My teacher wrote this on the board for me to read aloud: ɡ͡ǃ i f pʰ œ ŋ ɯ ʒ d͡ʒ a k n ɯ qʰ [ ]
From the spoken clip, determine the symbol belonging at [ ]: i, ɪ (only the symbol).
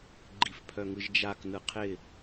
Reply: ɪ